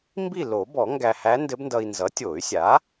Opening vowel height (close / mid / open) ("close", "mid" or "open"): close